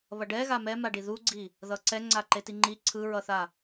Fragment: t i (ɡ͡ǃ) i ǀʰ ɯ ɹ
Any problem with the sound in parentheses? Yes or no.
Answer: yes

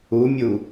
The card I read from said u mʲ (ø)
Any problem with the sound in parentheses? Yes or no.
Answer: yes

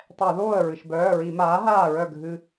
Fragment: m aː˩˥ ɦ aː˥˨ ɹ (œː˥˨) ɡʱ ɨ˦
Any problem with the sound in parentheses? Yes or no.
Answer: yes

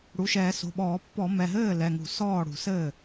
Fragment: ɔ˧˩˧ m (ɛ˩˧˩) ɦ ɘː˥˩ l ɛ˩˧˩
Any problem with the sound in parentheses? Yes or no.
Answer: no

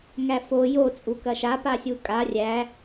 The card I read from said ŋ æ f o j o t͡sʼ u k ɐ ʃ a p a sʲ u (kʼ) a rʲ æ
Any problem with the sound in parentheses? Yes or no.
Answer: no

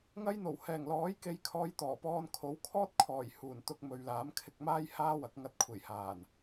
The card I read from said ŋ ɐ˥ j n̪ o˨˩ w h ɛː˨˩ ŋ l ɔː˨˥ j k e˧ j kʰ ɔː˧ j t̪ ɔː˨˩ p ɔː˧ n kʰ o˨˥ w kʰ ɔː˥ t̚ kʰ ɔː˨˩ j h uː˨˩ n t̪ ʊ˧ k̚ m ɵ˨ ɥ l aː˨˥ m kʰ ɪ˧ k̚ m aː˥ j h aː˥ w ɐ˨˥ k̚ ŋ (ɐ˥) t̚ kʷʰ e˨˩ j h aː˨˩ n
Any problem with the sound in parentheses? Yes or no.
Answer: yes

